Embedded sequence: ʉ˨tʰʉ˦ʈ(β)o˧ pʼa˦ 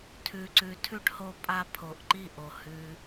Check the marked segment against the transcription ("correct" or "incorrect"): incorrect